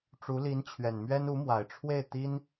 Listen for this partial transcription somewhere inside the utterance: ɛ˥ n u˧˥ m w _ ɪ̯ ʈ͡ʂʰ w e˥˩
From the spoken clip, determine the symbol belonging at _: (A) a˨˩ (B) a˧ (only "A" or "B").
A